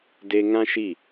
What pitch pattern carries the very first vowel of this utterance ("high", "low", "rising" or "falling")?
high